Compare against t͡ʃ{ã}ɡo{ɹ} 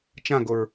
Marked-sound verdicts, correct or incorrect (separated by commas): correct, correct